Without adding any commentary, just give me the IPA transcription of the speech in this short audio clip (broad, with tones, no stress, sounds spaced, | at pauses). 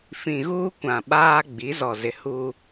f ĩ˨ ɣ uː˦ kʷ ã˨ ɓ aː˦ ɡ͡b i˨˦ z ɔ˨ z ɪ˨ h u˦